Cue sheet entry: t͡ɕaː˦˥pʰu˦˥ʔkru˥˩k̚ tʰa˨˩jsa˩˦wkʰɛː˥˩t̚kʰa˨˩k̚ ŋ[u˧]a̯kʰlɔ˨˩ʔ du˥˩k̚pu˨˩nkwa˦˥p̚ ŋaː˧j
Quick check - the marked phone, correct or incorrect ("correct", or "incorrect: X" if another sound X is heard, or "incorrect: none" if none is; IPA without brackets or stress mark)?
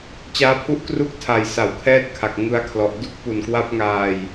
incorrect: ɯ˧